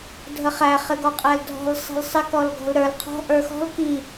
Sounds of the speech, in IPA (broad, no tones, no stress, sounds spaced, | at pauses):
dʱ ə χ æ χ ɪ ɡ ɔ qʼ æ l dʱ ɔ̤ l sˤ i̤ l sˤ ɪ k ɔ l ɡ ɔ̤ l ɾ ə˞ l qʰ ɔ̤ ʔ ə˞ x ɔ̤ l k i